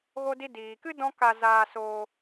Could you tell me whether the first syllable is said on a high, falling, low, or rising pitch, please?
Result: high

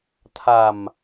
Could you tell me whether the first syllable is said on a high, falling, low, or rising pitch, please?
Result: low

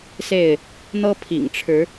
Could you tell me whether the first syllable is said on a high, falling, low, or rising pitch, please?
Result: falling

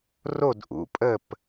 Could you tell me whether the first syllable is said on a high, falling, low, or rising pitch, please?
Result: falling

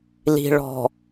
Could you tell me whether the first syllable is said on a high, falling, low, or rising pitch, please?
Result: low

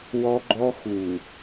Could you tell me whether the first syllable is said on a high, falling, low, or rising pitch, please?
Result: high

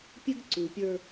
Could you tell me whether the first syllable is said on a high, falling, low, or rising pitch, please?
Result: high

